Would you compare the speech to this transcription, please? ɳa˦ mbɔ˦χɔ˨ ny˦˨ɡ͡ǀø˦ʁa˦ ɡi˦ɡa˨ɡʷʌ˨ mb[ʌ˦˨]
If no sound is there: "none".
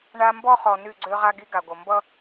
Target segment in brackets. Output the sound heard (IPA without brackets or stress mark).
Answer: ʌ˦